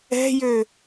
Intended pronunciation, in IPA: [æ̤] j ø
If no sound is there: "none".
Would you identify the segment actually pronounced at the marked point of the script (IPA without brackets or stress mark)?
ɛ̤